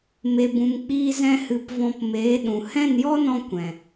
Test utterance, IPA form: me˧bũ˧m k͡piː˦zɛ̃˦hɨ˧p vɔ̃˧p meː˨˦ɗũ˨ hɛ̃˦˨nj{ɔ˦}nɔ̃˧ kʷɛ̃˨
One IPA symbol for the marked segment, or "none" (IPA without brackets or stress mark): ɔ˦